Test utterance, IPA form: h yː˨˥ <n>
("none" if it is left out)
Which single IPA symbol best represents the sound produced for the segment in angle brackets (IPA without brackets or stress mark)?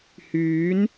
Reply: n